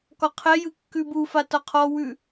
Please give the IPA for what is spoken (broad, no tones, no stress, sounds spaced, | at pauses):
k ɒ qʰ ɛ j ɯ kː ʉ b u f a t ɒ qʰ ɔ w ʉ